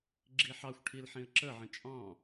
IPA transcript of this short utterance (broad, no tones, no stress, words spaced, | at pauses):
ɡ͡ǁiħɑxʷʈʰil ħĩə̯ǁəʕə̃ t͡ʃʼɑ̃